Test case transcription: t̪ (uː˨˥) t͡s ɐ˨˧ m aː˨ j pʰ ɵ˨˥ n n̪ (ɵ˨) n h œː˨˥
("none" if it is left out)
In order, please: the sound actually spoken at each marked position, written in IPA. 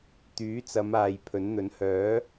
yː˨˥, ɵ˨˥

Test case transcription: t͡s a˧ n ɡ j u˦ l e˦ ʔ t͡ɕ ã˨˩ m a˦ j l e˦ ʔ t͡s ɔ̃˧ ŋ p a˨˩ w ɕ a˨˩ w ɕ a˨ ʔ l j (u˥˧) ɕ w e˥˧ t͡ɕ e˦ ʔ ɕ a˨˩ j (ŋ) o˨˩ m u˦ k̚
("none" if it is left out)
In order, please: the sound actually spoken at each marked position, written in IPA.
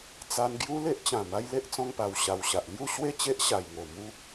u˥˧, ŋ

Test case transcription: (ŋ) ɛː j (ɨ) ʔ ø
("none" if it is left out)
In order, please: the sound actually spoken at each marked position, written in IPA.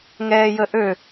ŋ, ə

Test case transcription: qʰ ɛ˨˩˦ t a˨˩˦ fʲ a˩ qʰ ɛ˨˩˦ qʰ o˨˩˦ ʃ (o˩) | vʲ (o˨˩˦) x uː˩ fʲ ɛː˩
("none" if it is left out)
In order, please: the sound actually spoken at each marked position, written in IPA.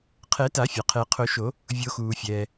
o˨˩˦, o˨˩˦

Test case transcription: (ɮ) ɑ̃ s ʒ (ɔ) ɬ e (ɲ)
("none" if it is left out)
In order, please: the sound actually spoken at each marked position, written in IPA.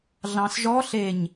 ɮ, ɔ, ɲ

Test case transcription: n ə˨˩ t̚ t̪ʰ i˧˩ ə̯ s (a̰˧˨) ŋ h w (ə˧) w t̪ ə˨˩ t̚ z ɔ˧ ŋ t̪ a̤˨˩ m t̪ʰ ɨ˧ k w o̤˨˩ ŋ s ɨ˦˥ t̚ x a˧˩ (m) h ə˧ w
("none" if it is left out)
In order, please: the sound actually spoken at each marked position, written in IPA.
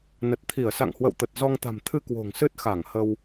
a̰˧˨, ə̰˧˨, ŋ

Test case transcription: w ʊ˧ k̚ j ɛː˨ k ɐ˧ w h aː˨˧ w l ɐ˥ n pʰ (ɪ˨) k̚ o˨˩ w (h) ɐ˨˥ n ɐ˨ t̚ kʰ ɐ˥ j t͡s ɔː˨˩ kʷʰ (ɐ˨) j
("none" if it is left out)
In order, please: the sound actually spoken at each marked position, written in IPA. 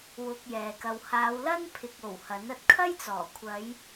ɪ˨, h, ɐ˨˧

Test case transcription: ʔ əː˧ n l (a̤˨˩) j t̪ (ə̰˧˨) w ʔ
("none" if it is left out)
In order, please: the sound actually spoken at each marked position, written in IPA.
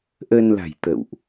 a̤˨˩, ə̰˧˨

